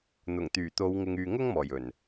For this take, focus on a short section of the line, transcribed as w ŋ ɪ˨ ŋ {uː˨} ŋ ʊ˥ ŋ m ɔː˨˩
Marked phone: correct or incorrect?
incorrect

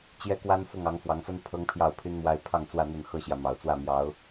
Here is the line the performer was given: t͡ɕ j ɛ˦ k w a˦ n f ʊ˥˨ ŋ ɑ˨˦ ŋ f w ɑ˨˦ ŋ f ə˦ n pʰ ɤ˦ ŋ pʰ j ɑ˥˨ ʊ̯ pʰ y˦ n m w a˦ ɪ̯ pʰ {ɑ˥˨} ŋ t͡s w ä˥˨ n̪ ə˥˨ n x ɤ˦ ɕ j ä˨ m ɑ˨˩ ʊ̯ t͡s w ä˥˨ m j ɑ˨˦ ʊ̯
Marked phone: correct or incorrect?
correct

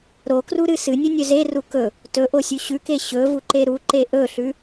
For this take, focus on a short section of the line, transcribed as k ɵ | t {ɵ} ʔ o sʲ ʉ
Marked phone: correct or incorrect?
correct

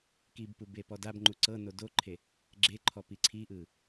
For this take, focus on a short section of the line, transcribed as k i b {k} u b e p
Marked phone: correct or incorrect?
incorrect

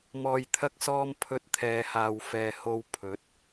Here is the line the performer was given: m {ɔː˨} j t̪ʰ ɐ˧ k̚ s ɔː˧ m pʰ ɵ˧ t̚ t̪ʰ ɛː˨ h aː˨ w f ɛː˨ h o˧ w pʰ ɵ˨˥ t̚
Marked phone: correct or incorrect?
correct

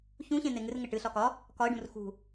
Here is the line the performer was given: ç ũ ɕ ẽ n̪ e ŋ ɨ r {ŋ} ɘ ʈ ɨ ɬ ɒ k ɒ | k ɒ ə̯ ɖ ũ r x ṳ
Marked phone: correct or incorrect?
correct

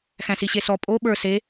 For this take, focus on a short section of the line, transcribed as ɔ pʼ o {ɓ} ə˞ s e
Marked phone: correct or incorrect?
correct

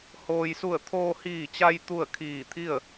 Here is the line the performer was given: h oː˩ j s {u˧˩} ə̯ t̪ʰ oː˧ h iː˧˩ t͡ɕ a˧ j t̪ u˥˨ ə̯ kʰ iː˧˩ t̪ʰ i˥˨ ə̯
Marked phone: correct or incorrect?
correct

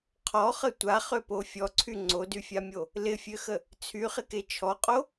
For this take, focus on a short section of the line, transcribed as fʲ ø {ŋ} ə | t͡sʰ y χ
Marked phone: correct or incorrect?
incorrect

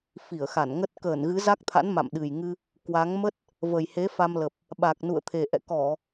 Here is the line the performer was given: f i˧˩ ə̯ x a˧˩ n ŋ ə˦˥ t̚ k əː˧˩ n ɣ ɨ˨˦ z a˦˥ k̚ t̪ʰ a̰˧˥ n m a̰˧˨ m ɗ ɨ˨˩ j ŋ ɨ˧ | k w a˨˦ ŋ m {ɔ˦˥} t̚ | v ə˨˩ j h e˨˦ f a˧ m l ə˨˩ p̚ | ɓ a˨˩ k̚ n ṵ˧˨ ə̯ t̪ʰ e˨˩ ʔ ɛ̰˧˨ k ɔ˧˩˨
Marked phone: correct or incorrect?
incorrect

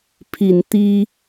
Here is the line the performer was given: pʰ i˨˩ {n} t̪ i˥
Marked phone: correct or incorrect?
correct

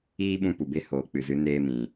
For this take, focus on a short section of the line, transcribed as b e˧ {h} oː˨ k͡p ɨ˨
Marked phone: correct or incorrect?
correct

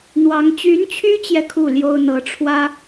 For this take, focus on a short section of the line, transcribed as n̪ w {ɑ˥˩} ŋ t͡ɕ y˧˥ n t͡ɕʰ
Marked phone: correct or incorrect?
incorrect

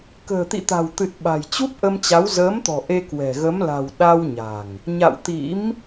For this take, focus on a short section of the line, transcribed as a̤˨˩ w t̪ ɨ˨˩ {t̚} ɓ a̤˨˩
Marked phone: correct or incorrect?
correct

